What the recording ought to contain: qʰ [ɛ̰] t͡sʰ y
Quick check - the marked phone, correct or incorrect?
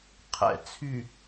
correct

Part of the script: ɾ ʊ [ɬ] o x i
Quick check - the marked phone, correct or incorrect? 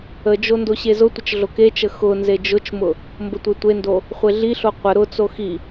incorrect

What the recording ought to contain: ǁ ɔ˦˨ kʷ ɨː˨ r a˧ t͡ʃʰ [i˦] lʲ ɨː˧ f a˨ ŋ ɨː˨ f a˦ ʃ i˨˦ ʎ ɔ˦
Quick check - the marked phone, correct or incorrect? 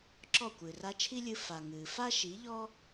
correct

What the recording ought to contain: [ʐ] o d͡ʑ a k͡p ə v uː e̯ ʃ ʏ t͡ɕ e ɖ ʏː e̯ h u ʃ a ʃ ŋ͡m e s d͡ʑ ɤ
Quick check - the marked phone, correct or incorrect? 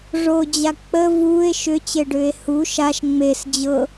correct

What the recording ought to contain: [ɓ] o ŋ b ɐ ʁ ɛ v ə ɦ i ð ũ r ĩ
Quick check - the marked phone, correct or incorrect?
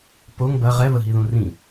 incorrect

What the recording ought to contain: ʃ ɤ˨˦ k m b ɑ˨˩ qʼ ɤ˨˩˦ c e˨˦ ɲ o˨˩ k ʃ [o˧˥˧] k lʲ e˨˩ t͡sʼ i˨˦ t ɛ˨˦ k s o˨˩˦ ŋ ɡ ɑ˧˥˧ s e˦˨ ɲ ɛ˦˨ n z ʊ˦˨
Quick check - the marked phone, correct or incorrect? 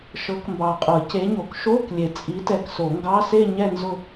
correct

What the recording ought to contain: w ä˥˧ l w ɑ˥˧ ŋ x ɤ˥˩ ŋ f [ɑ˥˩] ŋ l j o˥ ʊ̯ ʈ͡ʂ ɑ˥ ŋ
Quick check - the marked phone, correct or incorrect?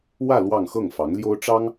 incorrect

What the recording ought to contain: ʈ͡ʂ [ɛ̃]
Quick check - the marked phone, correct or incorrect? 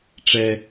incorrect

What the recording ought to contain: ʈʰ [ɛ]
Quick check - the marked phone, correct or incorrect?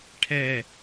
correct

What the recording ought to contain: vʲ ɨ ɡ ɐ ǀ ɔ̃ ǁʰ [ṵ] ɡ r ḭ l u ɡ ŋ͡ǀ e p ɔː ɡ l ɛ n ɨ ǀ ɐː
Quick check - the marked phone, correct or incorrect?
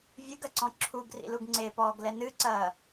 incorrect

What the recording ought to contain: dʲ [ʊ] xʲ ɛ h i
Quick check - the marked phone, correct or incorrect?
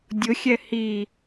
correct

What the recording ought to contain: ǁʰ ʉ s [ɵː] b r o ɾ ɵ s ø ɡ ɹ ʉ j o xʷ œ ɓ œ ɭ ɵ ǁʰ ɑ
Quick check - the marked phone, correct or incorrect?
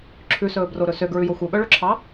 correct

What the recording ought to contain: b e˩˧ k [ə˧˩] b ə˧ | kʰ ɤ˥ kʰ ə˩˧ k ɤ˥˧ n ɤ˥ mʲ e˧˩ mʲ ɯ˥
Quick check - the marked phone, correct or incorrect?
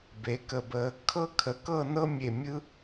correct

